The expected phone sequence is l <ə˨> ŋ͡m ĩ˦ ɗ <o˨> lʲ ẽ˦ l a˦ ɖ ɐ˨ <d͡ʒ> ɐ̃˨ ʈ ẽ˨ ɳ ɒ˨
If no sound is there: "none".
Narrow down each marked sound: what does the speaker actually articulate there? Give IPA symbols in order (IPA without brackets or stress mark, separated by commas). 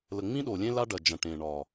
ə˨, o˨, d͡ʒ